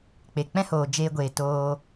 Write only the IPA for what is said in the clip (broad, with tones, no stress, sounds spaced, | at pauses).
k͡p e˨ k͡p ɛ̃˦ h oː˨ d͡ʒ eː˧ ɡʷ eː˨ t oː˧